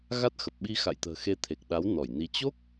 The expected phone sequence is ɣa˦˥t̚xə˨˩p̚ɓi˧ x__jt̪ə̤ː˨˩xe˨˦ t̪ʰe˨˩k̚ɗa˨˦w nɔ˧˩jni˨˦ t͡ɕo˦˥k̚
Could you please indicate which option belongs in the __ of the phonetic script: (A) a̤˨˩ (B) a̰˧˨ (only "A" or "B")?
B